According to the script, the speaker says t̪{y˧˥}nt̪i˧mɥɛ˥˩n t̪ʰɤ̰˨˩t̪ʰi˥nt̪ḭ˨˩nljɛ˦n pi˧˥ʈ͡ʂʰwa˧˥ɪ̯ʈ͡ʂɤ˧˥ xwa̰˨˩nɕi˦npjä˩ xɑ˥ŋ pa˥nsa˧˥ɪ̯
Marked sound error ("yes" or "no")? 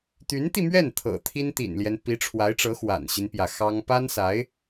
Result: no